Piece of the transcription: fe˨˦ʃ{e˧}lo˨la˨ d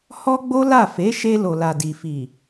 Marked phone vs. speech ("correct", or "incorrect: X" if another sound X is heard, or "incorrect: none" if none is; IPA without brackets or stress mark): correct